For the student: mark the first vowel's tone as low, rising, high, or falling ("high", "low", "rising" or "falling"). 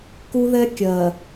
high